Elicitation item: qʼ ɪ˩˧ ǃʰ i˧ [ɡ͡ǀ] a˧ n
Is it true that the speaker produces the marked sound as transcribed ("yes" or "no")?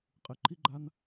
no